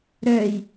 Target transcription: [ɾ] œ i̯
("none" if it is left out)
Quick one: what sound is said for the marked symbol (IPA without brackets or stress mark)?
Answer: ɾ